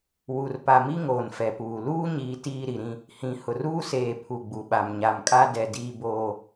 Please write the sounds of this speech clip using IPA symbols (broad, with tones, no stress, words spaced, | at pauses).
wu˨r pa˨mi˦ ŋoː˨nfɛ˨puː˨ luː˦ɲiː˨ tiː˦ ɾi˨ɾĩ˦ | hĩ˨hʊ˨r uː˦seː˨ pʰu˨ɡ͡bu˨ɓa˨m ɲa˨mkʼa˦dɛ˨ diː˦boː˦